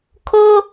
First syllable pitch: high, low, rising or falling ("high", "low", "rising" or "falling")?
high